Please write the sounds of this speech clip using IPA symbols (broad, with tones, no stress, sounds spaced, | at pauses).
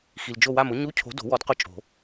x i˨ l d͡ʒ o˦˨ w a˦˨ m ʊ˦˥ ɲ u˧˥˧ cʰ o̤˨˥ d o̤˨˩˦ w ɔ˨˥ d q ʊ˦˨ t͡ʃʼ o̤˨˩˦